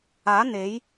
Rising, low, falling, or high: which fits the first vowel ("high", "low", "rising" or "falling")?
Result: rising